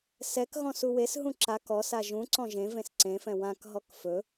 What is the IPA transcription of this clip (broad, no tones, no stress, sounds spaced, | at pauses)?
s ɛ k ɣ ɔ̃ s u w e s ɦ ũ ǁ a k ɔ s a ʒ ũ ǀ ɔ̃ ʒ ẽ v ẽ s ǀ ẽ f ɛ̃ w ã k ɦ ɔ k f ɵ